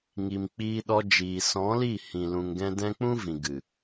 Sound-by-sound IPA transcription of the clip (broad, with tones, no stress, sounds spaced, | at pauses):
ŋ i˨ m k͡p iː˧ ɗ ɔ˧ d͡ʒ iː˨ s ɔ̃˨˦ l i˦˨ h ĩ˨ l ũ˨ ŋ ɡ ɛ̃˧ d ɛ̃˦ k͡p ũ˦ v ĩ˨ ɡ ɨ˨